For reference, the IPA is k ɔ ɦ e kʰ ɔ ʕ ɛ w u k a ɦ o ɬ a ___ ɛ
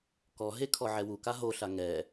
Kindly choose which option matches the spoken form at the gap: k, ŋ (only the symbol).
ŋ